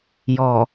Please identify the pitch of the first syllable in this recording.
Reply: low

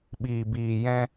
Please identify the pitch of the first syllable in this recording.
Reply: low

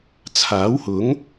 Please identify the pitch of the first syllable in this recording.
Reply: rising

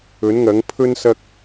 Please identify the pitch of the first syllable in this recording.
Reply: rising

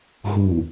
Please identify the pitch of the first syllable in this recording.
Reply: low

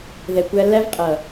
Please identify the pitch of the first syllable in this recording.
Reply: low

